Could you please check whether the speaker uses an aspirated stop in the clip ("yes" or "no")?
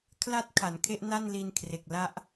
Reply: yes